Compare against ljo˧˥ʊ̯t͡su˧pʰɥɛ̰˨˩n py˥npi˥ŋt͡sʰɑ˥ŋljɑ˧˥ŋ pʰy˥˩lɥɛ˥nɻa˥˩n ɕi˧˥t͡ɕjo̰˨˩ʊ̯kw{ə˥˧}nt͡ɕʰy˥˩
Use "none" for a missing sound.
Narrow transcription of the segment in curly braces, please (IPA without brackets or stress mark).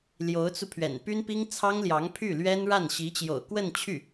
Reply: ə˥˧